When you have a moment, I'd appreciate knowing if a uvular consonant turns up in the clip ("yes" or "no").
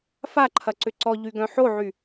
no